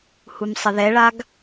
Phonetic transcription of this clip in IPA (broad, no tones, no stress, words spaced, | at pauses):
humsˤəðɛɭaɡ